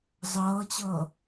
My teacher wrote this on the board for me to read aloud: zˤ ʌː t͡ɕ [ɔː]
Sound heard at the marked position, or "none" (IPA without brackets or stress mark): ʌː